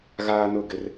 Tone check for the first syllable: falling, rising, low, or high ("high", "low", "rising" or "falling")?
high